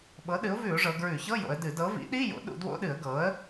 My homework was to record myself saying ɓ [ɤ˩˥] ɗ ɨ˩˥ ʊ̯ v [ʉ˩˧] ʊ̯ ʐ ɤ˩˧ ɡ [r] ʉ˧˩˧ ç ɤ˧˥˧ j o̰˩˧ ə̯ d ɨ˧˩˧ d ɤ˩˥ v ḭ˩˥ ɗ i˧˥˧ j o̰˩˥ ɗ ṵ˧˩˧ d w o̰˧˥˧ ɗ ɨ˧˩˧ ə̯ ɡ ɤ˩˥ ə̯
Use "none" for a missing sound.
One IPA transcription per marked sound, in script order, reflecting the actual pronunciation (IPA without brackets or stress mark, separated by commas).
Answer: ɤ˩˥, ʉ˧˩˧, ɹ